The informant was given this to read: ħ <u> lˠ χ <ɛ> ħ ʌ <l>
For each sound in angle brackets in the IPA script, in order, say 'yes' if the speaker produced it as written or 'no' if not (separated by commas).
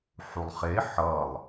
yes, no, no